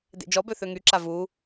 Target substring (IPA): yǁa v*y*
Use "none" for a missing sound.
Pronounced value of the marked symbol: u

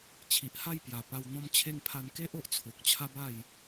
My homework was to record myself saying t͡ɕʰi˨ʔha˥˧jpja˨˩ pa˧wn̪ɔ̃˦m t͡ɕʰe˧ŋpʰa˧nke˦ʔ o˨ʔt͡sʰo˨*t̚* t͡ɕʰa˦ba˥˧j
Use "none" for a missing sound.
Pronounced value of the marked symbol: k̚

